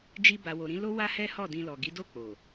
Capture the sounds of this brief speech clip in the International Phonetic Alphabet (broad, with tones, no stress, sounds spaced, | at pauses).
d͡ʒ i˧ b a˨ w o˨ ɾ ĩ˨˦ l o˦ w a˦ h ɛ˦ h ɔ˦˨ d ĩ˧ l ɔ˨ ɡ i˨˦ d o˦˨ k͡p o˨